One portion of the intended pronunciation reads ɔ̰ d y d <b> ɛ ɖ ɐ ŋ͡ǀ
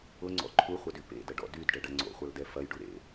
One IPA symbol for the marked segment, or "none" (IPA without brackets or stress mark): ɖ